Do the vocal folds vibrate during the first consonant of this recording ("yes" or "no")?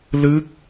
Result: yes